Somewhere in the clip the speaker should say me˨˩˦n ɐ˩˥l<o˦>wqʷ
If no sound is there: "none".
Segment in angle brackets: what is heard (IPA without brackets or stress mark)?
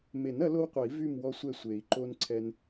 o˦